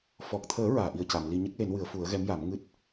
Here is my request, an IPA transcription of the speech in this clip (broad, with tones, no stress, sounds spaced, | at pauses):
f ɔ˨˩ k̚ t̪ʰ əː˨˩˦ ɹ aː˨˩˨ ʔ i˨˩ ə̯ c a˨˩˨ m l i˧ ɲ ə˦˥ k̚ l e˨˩˦ n w ɨ˨˩˦ ə̯ f u˨˩˦ ə̯ ɣ ɛ˧˥ m j a˨˩˦ m ŋ ɨ˦˥ t̚